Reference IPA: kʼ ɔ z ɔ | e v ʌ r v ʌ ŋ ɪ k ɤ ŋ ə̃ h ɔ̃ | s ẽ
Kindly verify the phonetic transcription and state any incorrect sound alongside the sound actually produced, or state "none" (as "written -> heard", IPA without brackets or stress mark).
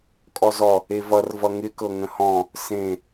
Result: none